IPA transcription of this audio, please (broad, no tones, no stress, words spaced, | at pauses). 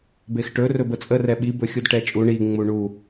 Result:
bexʈɵ rɵbət͡sʼə rɛɓi bɵxʲudʈɛt͡ʃʼu ɳi ŋ͡muɳu